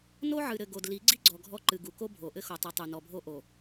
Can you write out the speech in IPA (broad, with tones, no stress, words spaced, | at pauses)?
no˦ʕɨ˨ɾɘ˨ ɡo˨dli˨˦ɡ͡ǀi˦ ɡ͡ǀɔ˨ɡʱɔ˦ǃɨ˨ ɡu˨ko˦bʱo˨ʔɘ˦ xo˨tˤɨ˨tˤu˨ nɔ˨bʱo˦ʔo˨